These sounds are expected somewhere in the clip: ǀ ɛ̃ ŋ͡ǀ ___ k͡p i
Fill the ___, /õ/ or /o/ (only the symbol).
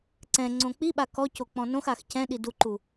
õ